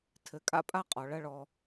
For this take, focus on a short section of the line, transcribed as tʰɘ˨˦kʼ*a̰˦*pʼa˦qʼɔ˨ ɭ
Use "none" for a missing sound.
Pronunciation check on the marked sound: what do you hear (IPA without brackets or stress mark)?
a̰˦